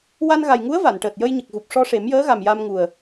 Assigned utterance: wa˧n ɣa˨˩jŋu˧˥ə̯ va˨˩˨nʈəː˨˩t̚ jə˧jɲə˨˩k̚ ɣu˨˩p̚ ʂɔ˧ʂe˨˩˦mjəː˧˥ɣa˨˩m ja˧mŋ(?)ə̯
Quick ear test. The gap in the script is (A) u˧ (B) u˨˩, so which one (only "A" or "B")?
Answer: B